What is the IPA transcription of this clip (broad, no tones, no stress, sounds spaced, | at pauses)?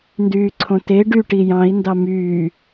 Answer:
n d yː ǀʰ õ t e ɖ y ʈ i j ɑ̃ i̯ n d ɑ m yː